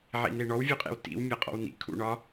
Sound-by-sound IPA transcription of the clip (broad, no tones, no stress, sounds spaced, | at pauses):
ʕ ḭ n e ɳ ɔ w vʲ u qʼ ḛ w t ḭ w mʲ ɒ qʼ ɔ̰ w n ḭ kʰ ṵ ɳ ɒ